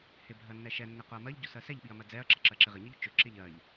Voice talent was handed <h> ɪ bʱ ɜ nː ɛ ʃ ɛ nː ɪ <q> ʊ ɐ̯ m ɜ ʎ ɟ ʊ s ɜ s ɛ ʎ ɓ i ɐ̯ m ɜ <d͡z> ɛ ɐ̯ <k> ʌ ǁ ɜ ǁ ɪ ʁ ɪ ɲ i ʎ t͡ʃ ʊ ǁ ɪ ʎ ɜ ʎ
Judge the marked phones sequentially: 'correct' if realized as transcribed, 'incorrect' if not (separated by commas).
correct, correct, correct, incorrect